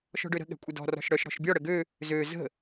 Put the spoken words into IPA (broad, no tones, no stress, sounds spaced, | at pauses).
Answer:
ʃ ɔ̤ ɖ ø ɾ ə̤ ɠ ɛ̤ kʷʼ ə d ɔ̤ r ɔ̤ ʃ ɽ œ ʃ ɽ ɔ̤ ʃ bʲ ɔ ɽ ə ɡ ø | z ø z ə̤